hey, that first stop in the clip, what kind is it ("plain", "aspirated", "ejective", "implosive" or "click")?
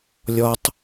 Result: plain